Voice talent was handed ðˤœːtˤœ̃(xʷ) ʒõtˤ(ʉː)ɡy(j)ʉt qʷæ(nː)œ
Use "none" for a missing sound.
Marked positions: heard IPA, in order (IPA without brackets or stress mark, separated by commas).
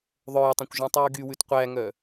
kʷ, ʉː, w, ŋ